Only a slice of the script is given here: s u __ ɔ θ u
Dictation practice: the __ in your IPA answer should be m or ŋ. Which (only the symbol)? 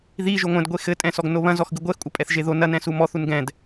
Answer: m